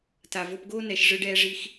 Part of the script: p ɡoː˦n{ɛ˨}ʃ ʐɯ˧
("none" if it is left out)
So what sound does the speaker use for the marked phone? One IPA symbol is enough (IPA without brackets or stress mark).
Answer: ɛ˨